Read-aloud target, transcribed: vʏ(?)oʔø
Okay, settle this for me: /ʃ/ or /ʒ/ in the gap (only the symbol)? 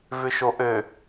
ʃ